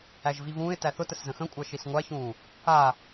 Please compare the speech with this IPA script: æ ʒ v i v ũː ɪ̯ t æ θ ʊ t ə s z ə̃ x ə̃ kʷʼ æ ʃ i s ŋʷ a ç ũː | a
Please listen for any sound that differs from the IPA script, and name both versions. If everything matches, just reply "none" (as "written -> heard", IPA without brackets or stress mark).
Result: none